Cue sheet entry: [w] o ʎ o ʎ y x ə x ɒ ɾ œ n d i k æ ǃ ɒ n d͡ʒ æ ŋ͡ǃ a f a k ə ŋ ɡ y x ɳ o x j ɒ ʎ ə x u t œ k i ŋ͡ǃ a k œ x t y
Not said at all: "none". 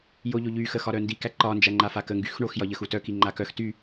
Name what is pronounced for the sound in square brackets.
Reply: j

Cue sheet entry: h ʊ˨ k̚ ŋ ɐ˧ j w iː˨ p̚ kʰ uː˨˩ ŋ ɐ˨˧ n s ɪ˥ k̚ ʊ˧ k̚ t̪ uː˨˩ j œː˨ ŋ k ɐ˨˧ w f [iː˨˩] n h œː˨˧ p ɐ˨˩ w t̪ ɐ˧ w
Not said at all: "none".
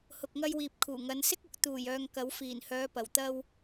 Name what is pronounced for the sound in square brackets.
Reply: iː˨˩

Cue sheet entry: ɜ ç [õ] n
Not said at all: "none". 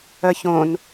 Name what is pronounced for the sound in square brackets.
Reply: õ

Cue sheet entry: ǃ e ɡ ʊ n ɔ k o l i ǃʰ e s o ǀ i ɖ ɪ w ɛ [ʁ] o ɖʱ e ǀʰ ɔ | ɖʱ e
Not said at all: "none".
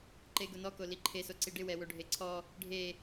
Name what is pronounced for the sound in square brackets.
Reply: w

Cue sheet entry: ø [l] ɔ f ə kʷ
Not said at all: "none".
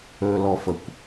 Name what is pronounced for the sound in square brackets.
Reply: l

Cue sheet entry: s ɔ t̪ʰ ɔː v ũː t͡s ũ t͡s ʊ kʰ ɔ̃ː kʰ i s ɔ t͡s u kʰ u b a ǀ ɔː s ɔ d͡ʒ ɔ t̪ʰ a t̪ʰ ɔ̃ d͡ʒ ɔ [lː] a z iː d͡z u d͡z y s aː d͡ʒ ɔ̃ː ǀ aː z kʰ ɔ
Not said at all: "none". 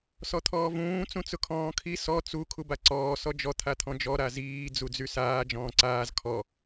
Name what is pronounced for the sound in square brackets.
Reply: ɾ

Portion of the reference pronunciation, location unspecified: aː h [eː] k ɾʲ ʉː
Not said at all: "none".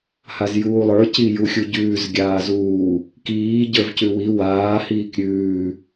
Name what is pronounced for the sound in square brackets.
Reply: iː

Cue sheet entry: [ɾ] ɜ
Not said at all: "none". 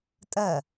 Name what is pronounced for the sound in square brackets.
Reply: tʼ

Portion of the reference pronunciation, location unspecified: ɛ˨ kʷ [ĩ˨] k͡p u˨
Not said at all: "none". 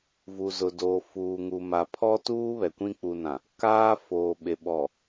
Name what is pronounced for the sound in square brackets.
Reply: ĩ˦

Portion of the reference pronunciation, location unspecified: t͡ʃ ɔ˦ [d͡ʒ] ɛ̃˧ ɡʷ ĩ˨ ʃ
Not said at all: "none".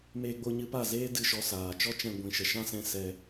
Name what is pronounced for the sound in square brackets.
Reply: t͡ʃ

